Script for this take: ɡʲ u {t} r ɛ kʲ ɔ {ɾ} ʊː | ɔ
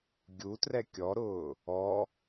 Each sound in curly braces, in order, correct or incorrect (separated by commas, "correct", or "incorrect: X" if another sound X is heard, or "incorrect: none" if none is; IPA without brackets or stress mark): correct, correct